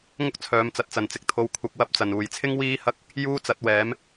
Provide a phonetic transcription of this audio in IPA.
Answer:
ŋʊ˥k̚ t͡sʰœː˨˧mt͡sɐ˨t̚t͡sɐ˨˩n t͡sɪ˨k̚t̪ʰo˨˧w kʷʰɐ˧k̚wɐ˥p̚t͡sɐ˨˩n uː˨˩jt͡sʰɪ˥ŋ wiː˥hɐ˥k̚ | juː˥t͡sɐ˨˥t̚wɛː˨˥m

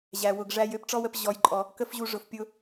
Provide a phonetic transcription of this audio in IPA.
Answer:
ʑæ˨ wʊ˨ɡʐæ˧j ø˧pʈ͡ʂɔ˦wə˧p ʑɔ˧jǃʼɔ˧ | kə˦fʑu˧ ʐʊ˨f pʲʊ˦

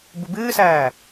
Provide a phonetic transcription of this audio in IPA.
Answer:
bubɨːsæː

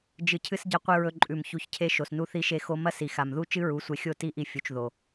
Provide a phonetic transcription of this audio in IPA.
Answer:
d͡ʒɨ˨cʰɨ˧sɟɐ˧ qʷɨ˧ɹɵ˧ǃʼʉ˨m çu˧çcʰe˦ʃo˨snu˦ θi˦ʃe˦xo˦ mɐ˦ si˨xa˨mðu˦ t͡ʃɨ˦ɹu˨˦sʷe˧xʲo˦˨ ti˦ʔi˧ fʲu˨t͡ʃðo˨

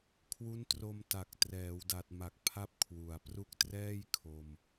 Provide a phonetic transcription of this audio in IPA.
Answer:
kʰwu˦˥ntro˧mta˨˩k̚ trɛː˩˦wda˨˩t̚ ma˨˩k̚pʰa˦˥p̚ kʰwu˨˩a̯ pru˦˥k̚trɛː˥˩j kʰo˧m

